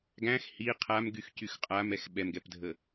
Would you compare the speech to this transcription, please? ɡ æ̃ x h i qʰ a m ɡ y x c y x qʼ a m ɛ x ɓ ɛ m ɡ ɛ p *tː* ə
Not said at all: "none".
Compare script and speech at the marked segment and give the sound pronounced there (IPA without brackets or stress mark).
dʱ